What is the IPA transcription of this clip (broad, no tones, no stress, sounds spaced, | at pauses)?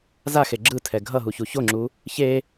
z a x e ɡ͡ǁ ɯ tʰ ɛ ɡʱ ʌ ɦ u ç u ç o ŋ͡ǁ u | ç e